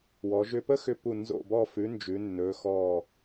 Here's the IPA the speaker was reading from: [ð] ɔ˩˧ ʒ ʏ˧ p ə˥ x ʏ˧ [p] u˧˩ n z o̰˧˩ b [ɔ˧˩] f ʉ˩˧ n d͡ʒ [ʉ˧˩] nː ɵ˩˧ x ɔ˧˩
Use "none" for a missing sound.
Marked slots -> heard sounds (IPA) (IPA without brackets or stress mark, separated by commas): w, p, ɔ˧˩, ʉ˩˧